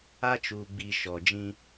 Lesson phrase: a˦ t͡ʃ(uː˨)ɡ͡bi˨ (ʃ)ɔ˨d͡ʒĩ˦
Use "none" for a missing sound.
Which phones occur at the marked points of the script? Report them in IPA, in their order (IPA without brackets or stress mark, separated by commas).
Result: uː˨, ʃ